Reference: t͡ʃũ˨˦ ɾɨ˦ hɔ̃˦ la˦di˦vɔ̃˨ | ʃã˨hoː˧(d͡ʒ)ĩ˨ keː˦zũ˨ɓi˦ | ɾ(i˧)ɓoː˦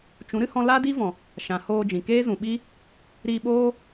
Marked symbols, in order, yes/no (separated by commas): yes, yes